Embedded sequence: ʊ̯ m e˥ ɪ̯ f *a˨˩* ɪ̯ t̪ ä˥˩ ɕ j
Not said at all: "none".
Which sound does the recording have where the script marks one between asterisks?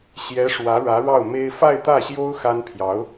a˥˧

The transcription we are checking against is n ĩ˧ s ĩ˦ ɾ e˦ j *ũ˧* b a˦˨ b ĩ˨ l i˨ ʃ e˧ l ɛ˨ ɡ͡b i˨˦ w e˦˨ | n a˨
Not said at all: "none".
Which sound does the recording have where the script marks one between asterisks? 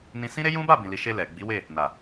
ũ˦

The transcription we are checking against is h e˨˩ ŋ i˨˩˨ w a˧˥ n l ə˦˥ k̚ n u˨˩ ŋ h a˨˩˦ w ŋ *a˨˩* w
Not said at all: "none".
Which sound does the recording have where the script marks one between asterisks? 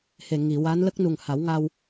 a˧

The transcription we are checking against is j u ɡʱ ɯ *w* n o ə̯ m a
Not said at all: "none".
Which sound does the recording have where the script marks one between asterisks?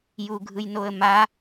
j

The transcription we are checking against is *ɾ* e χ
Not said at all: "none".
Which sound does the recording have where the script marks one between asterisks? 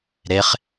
ɾ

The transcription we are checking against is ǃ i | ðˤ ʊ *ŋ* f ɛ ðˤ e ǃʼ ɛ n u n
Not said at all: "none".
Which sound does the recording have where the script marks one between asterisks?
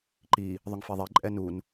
ŋ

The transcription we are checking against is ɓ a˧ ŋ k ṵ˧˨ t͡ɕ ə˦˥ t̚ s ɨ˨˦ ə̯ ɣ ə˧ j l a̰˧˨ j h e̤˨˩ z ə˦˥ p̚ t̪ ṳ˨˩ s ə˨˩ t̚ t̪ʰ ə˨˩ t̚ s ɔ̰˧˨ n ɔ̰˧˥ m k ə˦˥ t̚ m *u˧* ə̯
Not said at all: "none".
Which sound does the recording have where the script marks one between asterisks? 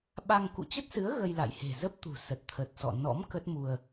u˧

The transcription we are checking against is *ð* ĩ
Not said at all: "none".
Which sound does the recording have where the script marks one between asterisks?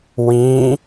w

